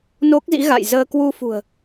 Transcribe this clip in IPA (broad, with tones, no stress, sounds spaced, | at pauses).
n o˦˥ k̚ z ḭ˧˥ ɣ a̰˧˨ j z əː˧ k w u˧ f ṳ˨˩ ə̯